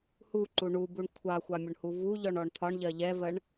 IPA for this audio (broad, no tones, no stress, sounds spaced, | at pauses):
h u ǃ u ɳ u b u ɳ kʷʰ ɑ xʷ ɑ mʲ ʊ ɳ h u v u ʎ ɔ ɳ ɔ ɳ t̪ʰ ɒ ɳ ʎ ɜ ʎ ɛ v ɜ ɳ